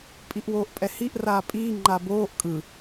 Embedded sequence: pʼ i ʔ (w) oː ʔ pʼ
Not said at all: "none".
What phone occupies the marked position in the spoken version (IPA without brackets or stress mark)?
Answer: w